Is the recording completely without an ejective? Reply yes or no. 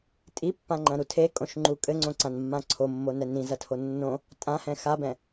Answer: no